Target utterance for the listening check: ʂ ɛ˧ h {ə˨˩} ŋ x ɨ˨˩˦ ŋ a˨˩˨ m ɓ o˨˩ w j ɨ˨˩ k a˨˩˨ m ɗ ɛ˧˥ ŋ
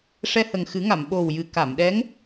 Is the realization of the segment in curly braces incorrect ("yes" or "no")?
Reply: no